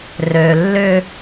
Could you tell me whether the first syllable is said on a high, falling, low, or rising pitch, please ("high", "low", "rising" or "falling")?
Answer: low